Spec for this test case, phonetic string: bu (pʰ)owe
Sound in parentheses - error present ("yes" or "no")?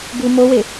yes